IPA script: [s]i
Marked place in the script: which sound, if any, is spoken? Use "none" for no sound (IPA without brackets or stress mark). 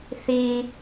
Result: θ